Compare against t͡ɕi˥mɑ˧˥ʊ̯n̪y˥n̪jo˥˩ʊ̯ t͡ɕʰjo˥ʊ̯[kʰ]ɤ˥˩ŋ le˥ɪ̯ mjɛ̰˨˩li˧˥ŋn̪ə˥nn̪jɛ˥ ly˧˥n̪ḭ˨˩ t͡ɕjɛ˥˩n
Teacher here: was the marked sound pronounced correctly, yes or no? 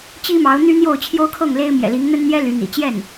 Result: yes